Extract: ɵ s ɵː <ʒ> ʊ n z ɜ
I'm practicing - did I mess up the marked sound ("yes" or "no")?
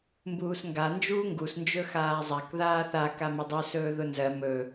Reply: yes